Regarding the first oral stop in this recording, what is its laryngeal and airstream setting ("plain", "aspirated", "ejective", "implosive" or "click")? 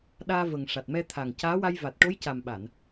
implosive